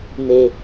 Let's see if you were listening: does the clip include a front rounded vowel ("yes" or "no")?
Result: no